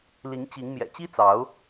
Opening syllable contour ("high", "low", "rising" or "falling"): rising